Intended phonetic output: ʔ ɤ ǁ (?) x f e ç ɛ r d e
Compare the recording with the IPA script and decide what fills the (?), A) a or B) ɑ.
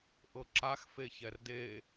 A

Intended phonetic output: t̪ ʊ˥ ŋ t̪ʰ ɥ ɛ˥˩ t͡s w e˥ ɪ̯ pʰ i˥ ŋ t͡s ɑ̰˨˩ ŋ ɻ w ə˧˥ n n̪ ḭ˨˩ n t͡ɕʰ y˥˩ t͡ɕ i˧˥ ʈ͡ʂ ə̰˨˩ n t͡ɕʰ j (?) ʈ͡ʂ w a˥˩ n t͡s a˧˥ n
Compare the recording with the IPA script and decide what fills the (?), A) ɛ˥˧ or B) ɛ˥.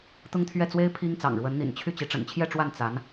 A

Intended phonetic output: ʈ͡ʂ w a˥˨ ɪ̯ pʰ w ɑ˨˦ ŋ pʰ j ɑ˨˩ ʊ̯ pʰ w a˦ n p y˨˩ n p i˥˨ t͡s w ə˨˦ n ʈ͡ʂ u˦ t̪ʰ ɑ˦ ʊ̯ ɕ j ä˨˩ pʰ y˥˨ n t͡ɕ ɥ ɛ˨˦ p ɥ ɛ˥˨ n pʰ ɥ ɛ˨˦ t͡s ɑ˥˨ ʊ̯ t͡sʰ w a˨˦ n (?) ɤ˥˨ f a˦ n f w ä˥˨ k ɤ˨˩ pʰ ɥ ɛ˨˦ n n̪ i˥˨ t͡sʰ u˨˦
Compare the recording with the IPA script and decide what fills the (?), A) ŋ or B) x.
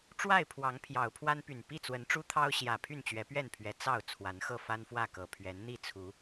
B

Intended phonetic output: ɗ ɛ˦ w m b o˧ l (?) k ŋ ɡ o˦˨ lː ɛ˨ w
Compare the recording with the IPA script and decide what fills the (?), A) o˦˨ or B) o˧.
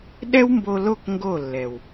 A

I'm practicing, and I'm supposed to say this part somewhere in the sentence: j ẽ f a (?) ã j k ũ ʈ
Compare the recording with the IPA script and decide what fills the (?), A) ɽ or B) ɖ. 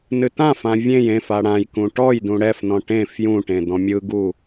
A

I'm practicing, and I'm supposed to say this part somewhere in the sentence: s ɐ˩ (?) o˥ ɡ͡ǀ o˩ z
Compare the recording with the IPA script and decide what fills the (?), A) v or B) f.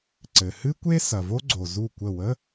A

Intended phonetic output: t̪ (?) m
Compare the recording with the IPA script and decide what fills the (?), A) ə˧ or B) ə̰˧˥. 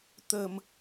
A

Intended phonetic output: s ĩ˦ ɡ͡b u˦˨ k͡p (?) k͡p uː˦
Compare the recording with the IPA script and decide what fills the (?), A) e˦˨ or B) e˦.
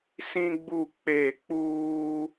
A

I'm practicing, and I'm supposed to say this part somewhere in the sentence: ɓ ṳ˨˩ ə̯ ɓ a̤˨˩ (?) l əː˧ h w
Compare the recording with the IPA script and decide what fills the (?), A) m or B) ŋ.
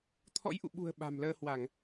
A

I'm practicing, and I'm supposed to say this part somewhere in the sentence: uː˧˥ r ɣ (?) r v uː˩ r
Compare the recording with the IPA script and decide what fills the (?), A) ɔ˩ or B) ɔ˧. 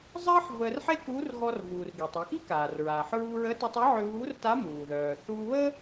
B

